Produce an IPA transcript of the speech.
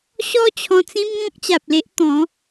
ɕ ɔ˦ t͡ɕʰ ɔ̃˧ t͡s ĩ˦ m ŋ ɔ̃˦ k̚ t͡ɕ a˨ p̚ l e˦ ʔ t̪ ɔ̃˨˦

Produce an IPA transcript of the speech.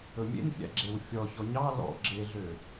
ɵ mʲ ḛ n fʲ æ̰ ɡ͡ǁ e w fʲ ɔ ç ɔ ɲ ɑ l ɔ̰ ɡ͡ǁ e ɮ ø

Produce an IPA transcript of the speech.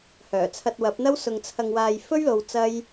h œː˨˩ t͡sʰ ɐ˧ t̚ w ɐ˨˥ p̚ n̪ ɐ˥ w s ʊ˧ ŋ t͡sʰ ɐ˧ ŋ w aː˧ j f ɵ˥ ɥ l o˧ w t͡s ɐ˥ j

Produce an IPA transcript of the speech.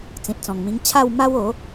t͡s ĩ˨ t̚ t͡s ɔ̃˨˩ ŋ m ĩ˧ ŋ t͡ɕʰ a˥˧ w m a˦ w o˨˦

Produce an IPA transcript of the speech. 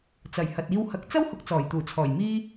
t͡s ɐ˨˩ j h ɐ˨ t̚ iː˧ w h ɐ˨˥ k̚ t͡s ɐ˥ w h ʊ˨˥ k̚ t͡s ɔː˨˩ j t̪ uː˨˩ t͡sʰ ɔː˨˩ j m iː˥

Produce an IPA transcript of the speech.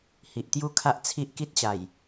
h i˨ ʔ t̪ j u˦ kʰ a˦ ʔ t͡sʰ i˦ ʔ k i˦ t̚ ɕ a˨˩ j

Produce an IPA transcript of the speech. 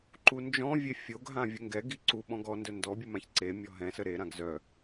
ǃ u n d͡ʒ ɔ̃ vʲ e fʲ o ɡ ɦ ã vʲ ə ŋ ɡ ɛ ɡ i ǀ u ɓ ɔ̃ ɡ ɔ n d œ n d ɔ bʲ u m ã ç ǀ e mʲ ɔ ɦ ɛ̃ s ə ɾ e ɾ ã ɡ z œ

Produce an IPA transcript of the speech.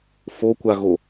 f o kʷ a ɣ o

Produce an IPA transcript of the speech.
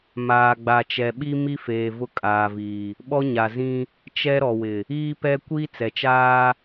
m aː˨ ɡ͡b a˨ t͡ʃ ɛ˨ ɓ i˦ m i˦ f eː˨ v ʊ˦ kʼ aː˨ v iː˨ | ɓ ɔ˦ ɲ a˨ z ĩ˦ | t͡ʃ ɛ˦ ɾ ɔ˨ w ɪ˨ | iː˦ p ɛ˦ kʷ iː˦ t͡s ɛ˨ t͡ʃ aː˦

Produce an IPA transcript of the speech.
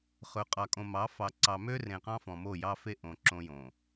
χ ɵ˨ qʼ ɑ˨ kʼ õ˨ m ɑ˨˦ f ɑ˨ ǀ ɑ˨ m ø˦ r ẽ˨ q ɑ̃˦ f ɔ̃˨ m o˦˨ j ɑ˦ f e˦ ʔ õ˨ ǁ õ˦ j õ˨

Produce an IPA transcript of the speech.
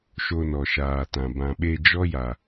ʃ o˧ n ɔ˨ ʃ aː˨ t ã˨ b ã˨ ɓ e˧ d͡ʒ ɔ˦ j a˨

